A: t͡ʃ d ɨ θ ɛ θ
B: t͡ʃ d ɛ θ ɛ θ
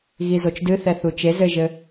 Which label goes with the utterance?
A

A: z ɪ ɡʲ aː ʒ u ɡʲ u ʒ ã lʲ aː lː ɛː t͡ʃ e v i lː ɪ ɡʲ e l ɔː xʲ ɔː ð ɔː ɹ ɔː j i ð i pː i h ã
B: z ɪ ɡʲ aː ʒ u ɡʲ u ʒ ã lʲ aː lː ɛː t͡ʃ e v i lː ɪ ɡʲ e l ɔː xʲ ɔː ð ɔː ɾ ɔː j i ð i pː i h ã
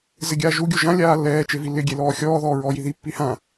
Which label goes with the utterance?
A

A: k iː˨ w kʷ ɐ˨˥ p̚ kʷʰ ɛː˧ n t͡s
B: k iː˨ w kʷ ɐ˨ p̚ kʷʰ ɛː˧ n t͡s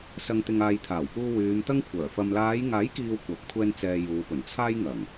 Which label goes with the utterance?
A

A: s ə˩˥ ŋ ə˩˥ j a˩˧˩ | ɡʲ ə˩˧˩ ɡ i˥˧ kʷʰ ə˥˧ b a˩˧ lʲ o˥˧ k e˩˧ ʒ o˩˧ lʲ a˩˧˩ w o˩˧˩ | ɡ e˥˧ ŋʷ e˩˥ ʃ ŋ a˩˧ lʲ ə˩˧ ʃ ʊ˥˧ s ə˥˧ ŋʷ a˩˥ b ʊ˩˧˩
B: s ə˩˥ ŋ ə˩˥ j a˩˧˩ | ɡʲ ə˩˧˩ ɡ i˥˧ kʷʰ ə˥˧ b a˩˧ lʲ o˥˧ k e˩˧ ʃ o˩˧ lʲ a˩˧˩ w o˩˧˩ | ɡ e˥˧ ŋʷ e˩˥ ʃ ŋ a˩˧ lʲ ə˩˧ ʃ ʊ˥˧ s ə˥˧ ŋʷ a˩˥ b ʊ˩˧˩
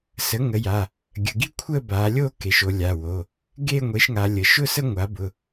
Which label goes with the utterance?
B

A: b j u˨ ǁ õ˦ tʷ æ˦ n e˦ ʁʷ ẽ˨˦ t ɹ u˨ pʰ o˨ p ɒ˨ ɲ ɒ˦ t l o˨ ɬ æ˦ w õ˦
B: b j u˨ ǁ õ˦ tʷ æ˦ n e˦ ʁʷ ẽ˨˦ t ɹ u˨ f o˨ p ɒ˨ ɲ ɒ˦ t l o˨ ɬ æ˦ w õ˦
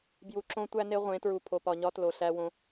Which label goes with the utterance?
A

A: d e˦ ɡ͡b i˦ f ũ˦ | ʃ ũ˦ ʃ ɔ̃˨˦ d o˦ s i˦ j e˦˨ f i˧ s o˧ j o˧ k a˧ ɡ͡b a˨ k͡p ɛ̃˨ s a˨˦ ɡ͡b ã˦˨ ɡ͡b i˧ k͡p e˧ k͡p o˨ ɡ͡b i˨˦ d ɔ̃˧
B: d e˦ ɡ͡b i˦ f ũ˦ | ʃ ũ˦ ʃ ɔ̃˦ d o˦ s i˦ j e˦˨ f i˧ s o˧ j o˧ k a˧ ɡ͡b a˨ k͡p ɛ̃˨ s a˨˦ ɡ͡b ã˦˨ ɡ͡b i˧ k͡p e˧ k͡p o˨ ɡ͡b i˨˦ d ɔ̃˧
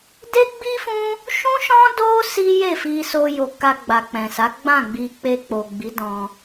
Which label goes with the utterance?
B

